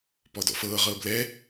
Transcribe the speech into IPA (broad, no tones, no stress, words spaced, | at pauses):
pɔdɔ̰fɤː ʁɤːblɛ